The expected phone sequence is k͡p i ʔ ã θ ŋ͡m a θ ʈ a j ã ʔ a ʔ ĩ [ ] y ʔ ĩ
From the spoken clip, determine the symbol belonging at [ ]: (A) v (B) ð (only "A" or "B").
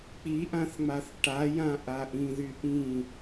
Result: B